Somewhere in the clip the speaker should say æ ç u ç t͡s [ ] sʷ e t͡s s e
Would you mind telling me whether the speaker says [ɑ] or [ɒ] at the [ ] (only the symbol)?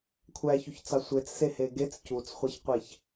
ɑ